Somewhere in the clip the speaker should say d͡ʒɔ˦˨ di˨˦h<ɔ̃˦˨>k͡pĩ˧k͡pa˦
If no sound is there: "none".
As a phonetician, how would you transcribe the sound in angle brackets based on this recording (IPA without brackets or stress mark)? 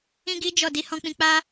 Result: ɔ̃˧